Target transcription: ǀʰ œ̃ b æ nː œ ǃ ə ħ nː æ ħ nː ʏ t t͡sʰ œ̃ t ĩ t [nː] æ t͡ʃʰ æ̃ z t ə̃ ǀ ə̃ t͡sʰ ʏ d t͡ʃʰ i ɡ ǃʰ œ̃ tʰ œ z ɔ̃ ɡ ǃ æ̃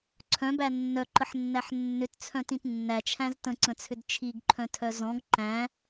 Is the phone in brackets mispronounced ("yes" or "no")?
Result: no